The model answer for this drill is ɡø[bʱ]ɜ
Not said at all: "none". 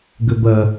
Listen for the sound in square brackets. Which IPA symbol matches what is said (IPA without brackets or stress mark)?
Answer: b